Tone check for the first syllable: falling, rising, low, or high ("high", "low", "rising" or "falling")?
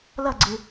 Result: falling